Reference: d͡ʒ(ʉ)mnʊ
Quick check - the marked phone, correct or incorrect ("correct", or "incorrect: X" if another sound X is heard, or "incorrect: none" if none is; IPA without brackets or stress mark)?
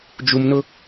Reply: incorrect: u